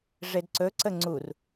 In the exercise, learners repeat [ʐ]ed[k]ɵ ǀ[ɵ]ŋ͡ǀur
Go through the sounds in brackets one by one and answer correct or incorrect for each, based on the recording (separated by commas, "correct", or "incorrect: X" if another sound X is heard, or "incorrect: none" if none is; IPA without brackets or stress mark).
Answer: correct, incorrect: ǀ, incorrect: ə